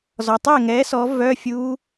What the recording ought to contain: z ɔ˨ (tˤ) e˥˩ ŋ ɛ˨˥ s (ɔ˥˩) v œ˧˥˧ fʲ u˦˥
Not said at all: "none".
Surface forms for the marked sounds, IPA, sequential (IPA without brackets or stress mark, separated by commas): tˤ, ɔ˨˥